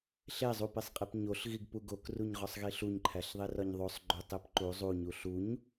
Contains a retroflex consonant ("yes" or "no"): no